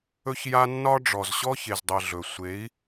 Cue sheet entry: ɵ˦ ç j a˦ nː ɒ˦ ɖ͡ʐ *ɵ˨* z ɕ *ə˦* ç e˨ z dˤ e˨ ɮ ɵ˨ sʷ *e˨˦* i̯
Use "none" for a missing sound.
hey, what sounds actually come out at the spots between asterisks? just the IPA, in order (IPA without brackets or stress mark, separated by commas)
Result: ɔ˨, ɔ˦, e˨˦